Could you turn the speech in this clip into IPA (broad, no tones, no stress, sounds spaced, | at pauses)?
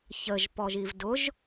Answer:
ç ə ʒ p ɔ ʒ i v d ʊ ʒ